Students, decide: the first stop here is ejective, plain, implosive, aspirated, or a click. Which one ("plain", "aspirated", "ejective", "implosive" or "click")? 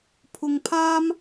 aspirated